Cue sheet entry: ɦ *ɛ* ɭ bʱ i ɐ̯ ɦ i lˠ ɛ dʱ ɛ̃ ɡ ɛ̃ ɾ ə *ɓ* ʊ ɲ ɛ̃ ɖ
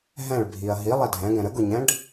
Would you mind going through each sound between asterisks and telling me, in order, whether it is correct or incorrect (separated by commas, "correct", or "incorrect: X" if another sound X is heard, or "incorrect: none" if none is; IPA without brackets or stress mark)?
incorrect: ɛ̃, incorrect: ɡ